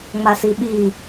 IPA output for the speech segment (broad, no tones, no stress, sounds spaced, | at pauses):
ŋ͡m a s i ɓ i